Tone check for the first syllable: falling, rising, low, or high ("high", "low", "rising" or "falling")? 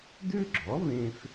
high